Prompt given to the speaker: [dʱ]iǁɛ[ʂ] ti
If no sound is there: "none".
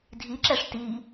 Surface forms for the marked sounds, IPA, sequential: dʱ, ʂ

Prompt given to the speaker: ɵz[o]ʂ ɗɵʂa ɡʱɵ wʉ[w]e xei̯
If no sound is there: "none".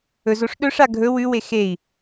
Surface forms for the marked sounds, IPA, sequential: o, w

